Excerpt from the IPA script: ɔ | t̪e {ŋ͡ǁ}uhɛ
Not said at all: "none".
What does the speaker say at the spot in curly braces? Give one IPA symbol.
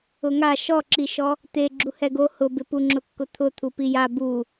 ɡ͡ǁ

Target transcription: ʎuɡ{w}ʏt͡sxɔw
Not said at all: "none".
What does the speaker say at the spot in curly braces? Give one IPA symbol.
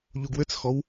w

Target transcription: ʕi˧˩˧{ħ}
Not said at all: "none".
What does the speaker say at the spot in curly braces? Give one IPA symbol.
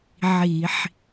ħ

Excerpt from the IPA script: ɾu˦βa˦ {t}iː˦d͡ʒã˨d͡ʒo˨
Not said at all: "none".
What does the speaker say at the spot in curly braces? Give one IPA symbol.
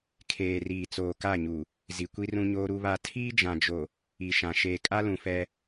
tʰ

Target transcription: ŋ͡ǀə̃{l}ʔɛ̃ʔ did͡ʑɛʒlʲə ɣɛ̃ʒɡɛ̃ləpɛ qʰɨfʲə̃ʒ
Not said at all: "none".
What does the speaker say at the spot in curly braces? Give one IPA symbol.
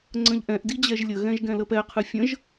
ʎ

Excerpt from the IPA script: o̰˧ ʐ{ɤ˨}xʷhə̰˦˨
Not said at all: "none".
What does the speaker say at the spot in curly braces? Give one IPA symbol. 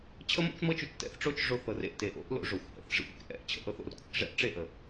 o˨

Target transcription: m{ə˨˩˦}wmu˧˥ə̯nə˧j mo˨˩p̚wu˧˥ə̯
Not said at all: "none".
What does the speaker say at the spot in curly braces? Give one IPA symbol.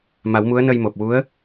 a˨˩˦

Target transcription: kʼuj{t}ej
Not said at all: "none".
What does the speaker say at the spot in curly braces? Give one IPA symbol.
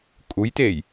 t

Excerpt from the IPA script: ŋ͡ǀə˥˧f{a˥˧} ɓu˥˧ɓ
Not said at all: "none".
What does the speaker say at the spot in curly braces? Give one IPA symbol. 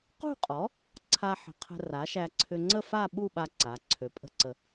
a˥˧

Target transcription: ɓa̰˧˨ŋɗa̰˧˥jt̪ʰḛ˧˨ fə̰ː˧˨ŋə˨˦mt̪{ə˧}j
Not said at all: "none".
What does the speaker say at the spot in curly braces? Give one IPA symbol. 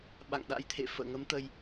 ə˧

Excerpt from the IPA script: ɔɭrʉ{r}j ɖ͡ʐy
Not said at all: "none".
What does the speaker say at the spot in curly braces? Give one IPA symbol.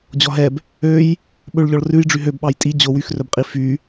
none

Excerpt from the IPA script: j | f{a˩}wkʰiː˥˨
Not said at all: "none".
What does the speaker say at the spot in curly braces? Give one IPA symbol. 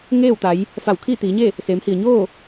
a˧˩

